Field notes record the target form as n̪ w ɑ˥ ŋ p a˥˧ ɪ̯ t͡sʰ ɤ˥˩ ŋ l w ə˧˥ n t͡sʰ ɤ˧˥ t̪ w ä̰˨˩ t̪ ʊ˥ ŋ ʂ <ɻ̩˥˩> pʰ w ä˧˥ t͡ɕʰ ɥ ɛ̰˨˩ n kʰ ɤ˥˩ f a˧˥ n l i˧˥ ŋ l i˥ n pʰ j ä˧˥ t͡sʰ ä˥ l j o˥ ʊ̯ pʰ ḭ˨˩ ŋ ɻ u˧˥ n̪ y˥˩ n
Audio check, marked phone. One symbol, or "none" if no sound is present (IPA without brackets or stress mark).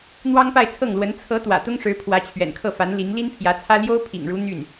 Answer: ɻ̩˧˥